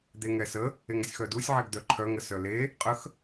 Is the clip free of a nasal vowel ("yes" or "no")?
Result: yes